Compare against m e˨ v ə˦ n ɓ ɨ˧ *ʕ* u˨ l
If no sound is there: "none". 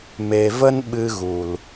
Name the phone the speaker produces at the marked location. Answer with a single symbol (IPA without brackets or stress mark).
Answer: ɣ